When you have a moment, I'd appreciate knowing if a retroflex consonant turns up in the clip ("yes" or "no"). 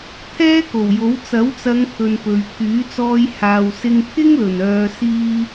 no